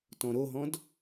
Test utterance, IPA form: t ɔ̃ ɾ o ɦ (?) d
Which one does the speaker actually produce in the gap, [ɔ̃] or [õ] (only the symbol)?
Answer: ɔ̃